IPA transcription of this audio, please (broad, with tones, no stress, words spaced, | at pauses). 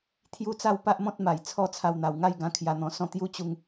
t̪ʰju˦t͡sa˥˧w pa˦ʔmɔ̃˦t̚ma˨˩j t͡sʰɔ˥˧t͡sʰa˧wn̪a˨˩w ŋa˥˧jɡã˧ kʰja˧n̪ɔ̃˧sɔ̃˦ t̪ju˦t͡ɕu˧ŋ